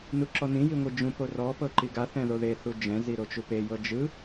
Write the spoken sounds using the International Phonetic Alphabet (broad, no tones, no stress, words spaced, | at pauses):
nuǁɔnĩ jiŋʷid͡ʒũ porɔ pɤǃiɡa θɛ̃ðoðe θud͡ʒɛ̃ ziɾot͡ʃupe jɤd͡ʒɯ